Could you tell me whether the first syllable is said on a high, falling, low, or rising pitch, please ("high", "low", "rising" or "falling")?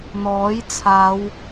rising